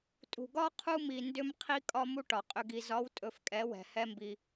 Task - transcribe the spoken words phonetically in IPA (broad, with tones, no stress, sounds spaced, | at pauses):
tʼ ṳ˨ ɡ ɒ˦ qʰ u˦ m i˨ n d ʏ˧ m qʰ i˦ kʼ ɒ˦ m u˦ ʈ ɒ˨ qʼ ʏ˧ ɡ i˨ z ɒ˨˦ w tʼ ɵ˧ f kʼ ɛ˨˦ w ɛ̤˨ h ɛ˦ m b i˧